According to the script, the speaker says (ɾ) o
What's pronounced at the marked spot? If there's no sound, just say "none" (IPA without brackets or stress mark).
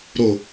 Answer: ɾ